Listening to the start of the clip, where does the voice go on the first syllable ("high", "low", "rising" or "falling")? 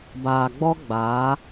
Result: low